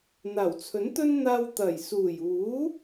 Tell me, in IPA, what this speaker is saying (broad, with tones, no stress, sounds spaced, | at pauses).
n̪ aː˨˩ w t͡sʰ ɵ˨˥ n t̪ ɵ˥ n n̪ aː˧ w t̪ ɐ˨˩ j s uː˨˩ j uː˨˥